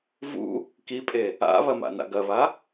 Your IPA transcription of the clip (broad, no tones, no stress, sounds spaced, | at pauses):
v ṵ | k i pʼ e | a̰ β ɐ m a̰ n a̰ ɡ ɐ β a